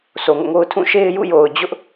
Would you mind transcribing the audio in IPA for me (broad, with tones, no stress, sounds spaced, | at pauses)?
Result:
s o˨ ŋ o̰˦˨ ŋ o˦ ʊ̯ tʰ ũ˦˨ ʃ e˦ ɪ̯ j ṵ˦˨ j o˨ ʊ̯ d͡ʑ ʊ˦ ʔ